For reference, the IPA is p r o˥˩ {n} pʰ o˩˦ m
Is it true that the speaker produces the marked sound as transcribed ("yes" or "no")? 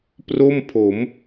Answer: no